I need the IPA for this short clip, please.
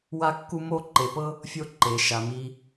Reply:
w a˦ kː u˦ m o˦ ǃ e˧ p ɤ˦ | fʲ o˦ ǃ e˧ ʃ a˧ m i˧

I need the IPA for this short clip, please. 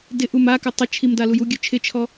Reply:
d ɪ ʔ u m a k ɵ tˤ ə t͡ʃʰ i m d a l u j u ɡʲ ɵ t͡ʃʰ ɪ t͡ʃʰ ɔ

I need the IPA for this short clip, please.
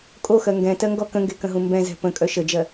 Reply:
kʼ o x ɜ ŋ ɡ ɛ̃ t ɜ ŋ ɡ ɔ k ə̃ ŋ ɡ e k ə̃ ɦ ũ m b ɛ̃ z ɛ̤ p ə̃ kʼ œ ʃ ə d͡ʒ ɜ

